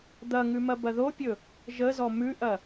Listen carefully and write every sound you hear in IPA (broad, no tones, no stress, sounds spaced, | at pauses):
d̪ ɐ ŋ ʉ m ɐ b ɐ ð o pʲ ɵ | ʒ ə z ɔ m ʉ ʔ ɐ